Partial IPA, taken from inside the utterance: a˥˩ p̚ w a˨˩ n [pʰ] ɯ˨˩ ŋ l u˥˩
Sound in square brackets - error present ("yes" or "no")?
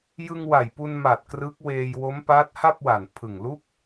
no